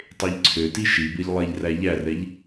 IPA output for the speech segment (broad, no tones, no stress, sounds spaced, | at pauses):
tˤ e ʎ ǀʰ ø t i ʃ i b e ʎ lˠ e ʎ r æ ʎ æ r ɛ ʎ